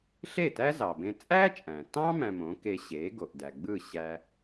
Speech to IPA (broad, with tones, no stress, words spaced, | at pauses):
ɬe˥˩tæ˥ zɑ˩bẽ˧ t͡sʼæ˥t͡ʃʼæ̃˩tɑ̃˥ mæ̃˧mõ˩˥ke˧ ɕe˩˥ɡo˩ʔdæ˩ɡ͡bɯ˥˩ ɕæ˧